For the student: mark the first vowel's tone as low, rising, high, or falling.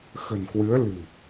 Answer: low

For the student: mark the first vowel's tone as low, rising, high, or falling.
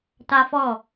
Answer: high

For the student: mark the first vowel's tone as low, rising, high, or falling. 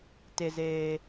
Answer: high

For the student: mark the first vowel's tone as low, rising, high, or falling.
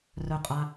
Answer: low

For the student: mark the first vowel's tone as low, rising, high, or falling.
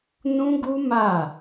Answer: high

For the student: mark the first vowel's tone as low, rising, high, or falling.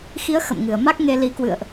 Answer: rising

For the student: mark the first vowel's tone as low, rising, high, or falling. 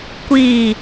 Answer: low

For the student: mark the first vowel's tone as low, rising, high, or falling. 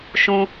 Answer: high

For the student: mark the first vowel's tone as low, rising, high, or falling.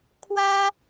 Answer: high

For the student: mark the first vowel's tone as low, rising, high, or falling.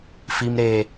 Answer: high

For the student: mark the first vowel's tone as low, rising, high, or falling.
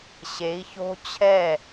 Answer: rising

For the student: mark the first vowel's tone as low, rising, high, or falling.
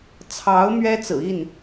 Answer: rising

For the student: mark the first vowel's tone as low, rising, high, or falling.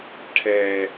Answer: low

